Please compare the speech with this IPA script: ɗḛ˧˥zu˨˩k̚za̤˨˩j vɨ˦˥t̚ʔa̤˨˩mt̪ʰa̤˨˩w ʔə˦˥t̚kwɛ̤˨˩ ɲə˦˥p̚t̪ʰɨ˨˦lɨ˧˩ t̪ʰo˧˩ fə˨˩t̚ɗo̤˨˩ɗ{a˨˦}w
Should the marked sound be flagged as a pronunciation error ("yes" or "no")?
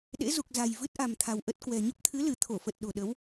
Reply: yes